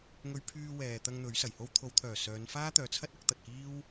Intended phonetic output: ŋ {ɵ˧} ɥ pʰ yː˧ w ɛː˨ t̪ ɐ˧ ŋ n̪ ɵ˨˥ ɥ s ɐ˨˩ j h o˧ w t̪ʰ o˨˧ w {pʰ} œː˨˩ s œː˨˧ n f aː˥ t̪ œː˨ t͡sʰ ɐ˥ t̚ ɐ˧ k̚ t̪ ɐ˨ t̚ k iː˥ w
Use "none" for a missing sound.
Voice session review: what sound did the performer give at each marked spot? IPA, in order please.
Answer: ɵ˧, t̪ʰ

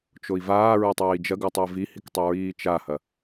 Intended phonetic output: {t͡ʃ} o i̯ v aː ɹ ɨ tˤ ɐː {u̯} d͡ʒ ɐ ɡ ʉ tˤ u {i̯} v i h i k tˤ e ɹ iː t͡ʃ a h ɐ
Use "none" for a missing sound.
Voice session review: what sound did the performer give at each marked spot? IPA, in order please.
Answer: t͡ʃ, i̯, i̯

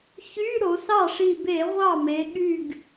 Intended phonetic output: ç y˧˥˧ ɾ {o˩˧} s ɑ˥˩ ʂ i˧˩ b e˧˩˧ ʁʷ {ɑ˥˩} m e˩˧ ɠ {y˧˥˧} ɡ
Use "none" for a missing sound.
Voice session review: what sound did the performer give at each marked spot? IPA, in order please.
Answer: o˩˧, ɑ˥˩, y˧˩

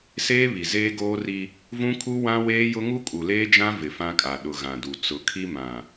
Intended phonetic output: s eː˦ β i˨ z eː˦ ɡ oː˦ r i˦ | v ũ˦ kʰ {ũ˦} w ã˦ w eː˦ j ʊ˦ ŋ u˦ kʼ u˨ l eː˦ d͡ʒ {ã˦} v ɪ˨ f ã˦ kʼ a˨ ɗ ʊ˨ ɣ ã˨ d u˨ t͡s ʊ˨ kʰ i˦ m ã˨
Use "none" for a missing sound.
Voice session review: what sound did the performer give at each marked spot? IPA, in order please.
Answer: u˦, ã˦

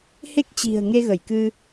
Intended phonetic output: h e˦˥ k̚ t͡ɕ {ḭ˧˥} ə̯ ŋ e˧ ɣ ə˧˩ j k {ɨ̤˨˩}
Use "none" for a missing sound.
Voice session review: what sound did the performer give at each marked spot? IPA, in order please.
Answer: i̤˨˩, ɨ˧

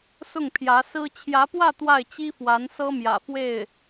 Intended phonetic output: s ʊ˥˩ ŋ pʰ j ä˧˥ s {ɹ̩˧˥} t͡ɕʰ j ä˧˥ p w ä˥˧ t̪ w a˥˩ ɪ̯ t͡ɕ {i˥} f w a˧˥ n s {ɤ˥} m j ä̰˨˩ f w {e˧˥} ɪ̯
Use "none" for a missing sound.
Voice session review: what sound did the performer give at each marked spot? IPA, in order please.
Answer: ɹ̩˥, i˥, ɤ˥, e˥˩

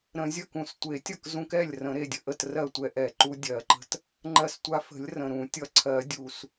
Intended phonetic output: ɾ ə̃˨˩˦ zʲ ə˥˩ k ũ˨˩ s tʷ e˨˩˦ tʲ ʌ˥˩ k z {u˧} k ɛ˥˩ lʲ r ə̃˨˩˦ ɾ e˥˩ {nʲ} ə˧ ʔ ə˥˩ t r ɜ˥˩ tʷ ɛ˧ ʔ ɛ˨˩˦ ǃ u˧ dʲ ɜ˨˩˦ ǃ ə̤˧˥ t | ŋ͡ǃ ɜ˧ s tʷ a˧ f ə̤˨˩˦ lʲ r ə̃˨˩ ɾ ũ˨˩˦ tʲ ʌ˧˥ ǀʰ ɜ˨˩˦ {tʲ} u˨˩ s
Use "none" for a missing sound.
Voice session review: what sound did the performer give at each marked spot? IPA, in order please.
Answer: ũ˧, dʲ, dʲ

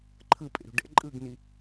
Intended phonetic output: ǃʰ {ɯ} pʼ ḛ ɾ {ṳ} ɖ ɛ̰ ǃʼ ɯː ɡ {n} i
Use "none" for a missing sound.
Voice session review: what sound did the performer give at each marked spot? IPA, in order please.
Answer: ɯ, ṳ, n

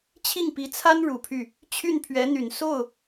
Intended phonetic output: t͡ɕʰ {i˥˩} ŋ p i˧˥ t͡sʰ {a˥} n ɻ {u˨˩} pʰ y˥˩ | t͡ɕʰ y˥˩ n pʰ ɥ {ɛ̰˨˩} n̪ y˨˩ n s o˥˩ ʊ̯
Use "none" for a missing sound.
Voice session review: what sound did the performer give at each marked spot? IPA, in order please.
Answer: i˥˩, a˥, u˨˩, ɛ˧˥

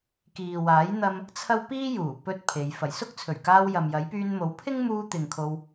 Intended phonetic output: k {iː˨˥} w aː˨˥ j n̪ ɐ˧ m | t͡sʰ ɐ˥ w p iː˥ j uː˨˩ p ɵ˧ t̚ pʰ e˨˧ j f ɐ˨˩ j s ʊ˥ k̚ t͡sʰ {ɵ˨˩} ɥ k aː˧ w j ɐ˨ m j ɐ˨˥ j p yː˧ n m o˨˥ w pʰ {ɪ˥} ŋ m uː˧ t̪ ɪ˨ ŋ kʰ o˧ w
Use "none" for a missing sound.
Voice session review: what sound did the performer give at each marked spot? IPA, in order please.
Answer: iː˨, ɵ˨˩, ɪ˥

